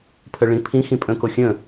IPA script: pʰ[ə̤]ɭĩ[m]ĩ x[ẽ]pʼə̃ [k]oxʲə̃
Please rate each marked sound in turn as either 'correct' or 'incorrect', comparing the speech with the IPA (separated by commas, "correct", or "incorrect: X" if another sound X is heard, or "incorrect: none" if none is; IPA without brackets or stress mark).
incorrect: ə, incorrect: pʰ, incorrect: ĩ, correct